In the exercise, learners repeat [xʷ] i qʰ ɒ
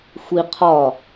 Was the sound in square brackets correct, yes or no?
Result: yes